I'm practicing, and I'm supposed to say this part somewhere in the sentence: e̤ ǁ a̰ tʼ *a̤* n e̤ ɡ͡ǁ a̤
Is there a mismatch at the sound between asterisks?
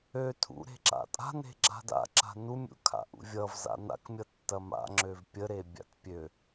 no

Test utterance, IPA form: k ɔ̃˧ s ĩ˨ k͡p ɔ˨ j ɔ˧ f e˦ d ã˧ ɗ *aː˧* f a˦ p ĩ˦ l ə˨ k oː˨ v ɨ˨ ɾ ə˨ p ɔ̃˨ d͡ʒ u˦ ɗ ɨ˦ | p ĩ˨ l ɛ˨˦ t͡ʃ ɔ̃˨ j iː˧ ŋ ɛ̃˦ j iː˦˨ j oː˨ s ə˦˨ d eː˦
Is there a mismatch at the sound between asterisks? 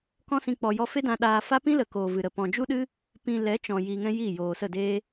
no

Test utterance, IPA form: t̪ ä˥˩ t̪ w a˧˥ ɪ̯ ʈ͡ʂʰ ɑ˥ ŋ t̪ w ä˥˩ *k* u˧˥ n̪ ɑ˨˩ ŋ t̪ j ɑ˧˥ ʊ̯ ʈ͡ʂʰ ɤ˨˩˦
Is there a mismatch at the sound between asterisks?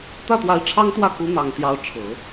no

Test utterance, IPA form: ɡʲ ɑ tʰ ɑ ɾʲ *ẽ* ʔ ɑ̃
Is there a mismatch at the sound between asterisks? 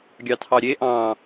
yes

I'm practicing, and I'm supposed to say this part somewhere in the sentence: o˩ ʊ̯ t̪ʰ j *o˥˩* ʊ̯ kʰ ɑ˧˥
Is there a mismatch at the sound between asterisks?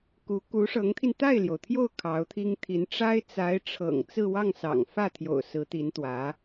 no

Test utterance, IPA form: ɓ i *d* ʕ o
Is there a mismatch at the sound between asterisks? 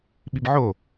yes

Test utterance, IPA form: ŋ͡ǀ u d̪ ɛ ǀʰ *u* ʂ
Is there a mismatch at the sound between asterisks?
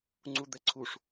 no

